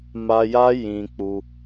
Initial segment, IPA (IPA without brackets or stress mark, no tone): m